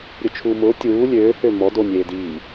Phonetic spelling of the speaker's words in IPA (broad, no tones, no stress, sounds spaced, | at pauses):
ɾʲ ʊ t͡ʃʰ uː m ʊː tʲ uː lʲ øː h ø m ɔ d o nʲ eː d iː